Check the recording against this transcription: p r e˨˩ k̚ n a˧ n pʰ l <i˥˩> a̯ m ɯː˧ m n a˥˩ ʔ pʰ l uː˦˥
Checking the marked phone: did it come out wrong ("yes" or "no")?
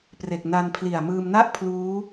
yes